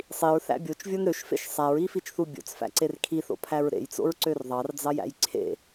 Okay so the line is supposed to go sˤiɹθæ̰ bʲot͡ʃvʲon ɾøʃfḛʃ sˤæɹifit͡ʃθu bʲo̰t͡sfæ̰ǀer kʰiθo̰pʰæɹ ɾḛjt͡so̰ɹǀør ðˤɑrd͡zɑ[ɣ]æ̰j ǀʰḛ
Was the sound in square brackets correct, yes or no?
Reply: no